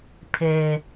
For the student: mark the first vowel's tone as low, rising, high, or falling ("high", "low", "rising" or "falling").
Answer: low